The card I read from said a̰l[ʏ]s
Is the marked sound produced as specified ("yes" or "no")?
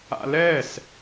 no